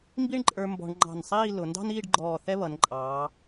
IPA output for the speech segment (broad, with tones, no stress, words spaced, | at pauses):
mbi˥ɳǃʼə˞˧ mbɔ̤˧ɳ ŋ͡ǃɑ̤˧˩nsˤiː˥˧ lʊ˩˧ndɑ̤˥niː˥˧ɖɡ͡ǃɔː˧˩ θɛ˥βʌ˩˧nǃʼɑː˩˧